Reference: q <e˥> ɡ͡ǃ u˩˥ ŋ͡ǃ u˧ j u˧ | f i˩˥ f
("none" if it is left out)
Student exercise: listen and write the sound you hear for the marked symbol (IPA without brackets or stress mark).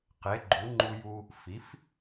e˩˥